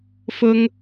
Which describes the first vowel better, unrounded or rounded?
rounded